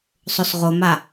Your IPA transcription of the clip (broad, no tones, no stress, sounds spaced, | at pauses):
sˤ o s ʁ o m a